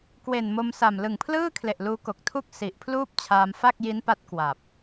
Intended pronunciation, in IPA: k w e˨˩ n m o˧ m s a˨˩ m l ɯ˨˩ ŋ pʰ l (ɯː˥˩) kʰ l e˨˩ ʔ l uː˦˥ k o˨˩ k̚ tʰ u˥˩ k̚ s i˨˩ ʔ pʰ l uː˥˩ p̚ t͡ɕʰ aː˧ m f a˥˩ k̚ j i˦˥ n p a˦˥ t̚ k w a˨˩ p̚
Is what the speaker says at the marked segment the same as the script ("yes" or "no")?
yes